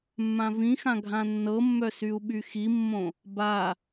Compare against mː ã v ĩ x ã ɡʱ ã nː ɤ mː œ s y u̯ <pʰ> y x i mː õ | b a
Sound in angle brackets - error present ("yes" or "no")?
yes